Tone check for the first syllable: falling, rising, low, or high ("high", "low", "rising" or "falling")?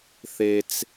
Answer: high